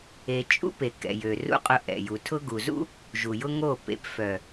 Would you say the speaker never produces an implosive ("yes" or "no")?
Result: yes